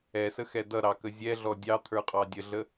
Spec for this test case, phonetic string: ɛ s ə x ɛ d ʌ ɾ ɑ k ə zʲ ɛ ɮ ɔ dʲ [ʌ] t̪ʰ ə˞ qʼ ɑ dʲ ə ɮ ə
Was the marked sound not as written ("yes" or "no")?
yes